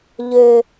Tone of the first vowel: low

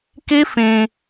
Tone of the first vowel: high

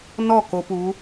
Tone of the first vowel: falling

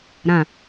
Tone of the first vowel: low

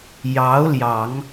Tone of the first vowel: rising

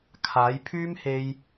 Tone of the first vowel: rising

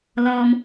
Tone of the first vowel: low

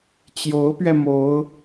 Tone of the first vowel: rising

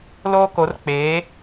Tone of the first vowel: high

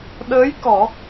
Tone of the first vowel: rising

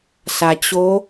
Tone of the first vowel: low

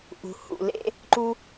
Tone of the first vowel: low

